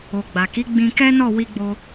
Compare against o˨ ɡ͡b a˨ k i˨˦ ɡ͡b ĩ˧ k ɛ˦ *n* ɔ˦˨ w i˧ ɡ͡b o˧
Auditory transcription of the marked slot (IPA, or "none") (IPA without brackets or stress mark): n